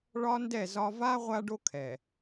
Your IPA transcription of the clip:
ɭɒ˦ndɛ˦˨zɒ˦ va˦ ʁʷa˦ɖo˦ kʰɛ˨

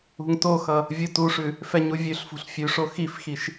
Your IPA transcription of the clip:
ṳŋtoxʌ | vʲutuʂʉ | fɛɲuvʲʉɬfṳɬ fʲʉʂo xifxiʃ

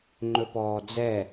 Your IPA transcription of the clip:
ŋ͡ǃɵpɔːd͡zɛ

